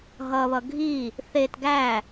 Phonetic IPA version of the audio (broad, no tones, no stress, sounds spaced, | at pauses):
ɦ ʌ β ʌ ɡʱ i | θ e t ɡ æ